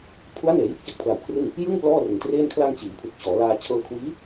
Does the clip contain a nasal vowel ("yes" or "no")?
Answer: no